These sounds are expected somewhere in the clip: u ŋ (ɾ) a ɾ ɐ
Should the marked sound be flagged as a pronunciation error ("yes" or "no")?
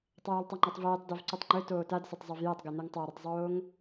yes